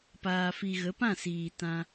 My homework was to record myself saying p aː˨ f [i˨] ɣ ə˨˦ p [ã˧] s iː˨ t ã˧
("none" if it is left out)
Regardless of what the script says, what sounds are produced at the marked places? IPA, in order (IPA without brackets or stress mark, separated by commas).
i˨, ã˦˨